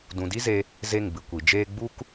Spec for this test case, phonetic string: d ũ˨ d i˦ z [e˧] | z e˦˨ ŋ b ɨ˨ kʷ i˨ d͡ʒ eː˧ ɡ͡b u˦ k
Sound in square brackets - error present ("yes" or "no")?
no